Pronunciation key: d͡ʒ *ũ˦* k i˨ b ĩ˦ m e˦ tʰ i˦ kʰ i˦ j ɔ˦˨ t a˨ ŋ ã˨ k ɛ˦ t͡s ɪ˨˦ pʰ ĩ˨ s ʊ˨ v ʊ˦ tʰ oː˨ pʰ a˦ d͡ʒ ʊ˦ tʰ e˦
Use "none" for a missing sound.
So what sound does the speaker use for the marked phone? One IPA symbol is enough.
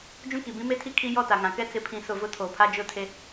ũ˦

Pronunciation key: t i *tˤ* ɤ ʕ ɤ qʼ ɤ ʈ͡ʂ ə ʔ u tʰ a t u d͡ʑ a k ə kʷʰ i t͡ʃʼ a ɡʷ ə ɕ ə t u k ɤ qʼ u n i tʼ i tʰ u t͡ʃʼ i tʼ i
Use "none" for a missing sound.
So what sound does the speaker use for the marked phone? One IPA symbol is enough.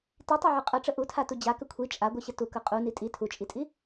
tˤ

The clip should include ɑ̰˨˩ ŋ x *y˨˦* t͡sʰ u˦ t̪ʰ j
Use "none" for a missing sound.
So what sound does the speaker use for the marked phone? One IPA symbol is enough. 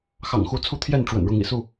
u˨˦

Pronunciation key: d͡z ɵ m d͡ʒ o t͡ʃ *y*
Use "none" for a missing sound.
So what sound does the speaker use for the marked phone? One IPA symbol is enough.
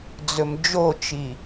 i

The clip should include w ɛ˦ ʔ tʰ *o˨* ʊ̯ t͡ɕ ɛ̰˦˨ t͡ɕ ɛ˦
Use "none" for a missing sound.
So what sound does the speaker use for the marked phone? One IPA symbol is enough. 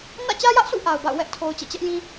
o˨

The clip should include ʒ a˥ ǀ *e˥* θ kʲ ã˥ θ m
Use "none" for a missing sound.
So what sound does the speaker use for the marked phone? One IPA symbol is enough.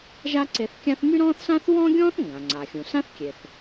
e˧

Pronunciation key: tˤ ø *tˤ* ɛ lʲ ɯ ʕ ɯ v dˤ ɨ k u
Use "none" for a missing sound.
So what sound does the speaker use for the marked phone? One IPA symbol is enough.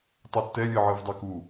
tː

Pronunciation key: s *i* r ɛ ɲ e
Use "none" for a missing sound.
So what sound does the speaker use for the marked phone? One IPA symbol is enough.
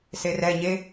e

